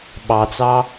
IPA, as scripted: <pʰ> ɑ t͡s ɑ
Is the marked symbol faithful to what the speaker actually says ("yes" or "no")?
no